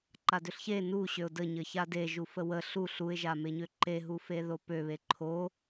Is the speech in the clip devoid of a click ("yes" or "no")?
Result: no